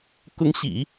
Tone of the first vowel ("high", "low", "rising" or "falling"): rising